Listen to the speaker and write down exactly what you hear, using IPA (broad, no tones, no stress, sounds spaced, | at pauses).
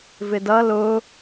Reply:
v ɪ d ʌ l ʊ